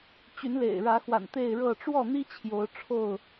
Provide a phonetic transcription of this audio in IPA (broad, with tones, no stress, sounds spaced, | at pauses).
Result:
t͡ɕ y˨˦ n l ḛ˨˩ ɪ̯ ɻ ä˨˦ x w a̰˨˩ n t̪ e˥˨ ɪ̯ ɻ ɤ˥˨ ʈ͡ʂ w ɔ˥˨ n̪ i˦ t͡ɕʰ j o˨˦ ʊ̯ ʈ͡ʂʰ o˥˨ ʊ̯